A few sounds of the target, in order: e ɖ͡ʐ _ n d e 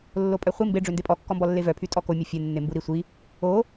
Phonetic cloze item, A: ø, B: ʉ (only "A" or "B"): A